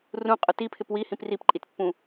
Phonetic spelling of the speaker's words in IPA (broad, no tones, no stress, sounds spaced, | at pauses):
r ũ qʼ ʊ t i pʰ ɪ p w i h ĩ p r i p ǃʼ i t pː ũ